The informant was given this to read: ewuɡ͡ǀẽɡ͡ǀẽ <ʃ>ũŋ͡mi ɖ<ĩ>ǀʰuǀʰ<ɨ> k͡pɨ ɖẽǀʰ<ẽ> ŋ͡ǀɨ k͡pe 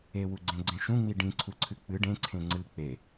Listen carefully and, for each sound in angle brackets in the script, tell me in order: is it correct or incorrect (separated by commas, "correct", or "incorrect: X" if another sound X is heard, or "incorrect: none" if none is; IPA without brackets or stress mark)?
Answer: correct, correct, correct, correct